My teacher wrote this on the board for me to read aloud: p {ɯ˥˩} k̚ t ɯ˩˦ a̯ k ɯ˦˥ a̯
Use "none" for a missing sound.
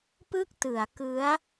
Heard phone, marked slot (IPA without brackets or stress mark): ɯ˥˩